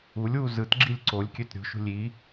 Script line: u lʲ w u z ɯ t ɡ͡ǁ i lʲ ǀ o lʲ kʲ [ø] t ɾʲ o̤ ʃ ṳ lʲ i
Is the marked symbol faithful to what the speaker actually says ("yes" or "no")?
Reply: yes